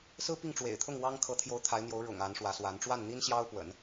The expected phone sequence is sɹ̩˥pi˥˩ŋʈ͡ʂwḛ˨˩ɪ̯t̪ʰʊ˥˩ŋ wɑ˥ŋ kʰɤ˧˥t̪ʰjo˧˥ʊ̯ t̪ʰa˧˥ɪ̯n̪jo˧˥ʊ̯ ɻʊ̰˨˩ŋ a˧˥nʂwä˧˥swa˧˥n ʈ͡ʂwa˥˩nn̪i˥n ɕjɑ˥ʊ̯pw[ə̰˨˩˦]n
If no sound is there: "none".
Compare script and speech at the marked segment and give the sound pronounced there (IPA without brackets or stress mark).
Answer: ə̰˨˩˦